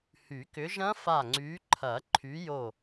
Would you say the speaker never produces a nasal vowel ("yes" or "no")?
no